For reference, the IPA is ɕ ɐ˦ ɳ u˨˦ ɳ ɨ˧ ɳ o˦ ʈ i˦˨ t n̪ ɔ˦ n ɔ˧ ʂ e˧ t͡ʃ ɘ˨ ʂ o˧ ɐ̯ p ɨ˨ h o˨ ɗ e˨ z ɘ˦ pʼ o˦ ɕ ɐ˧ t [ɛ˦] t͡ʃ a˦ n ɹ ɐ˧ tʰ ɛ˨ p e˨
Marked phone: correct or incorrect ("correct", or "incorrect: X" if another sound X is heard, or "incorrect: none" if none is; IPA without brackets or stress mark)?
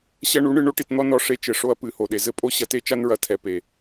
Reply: incorrect: e˦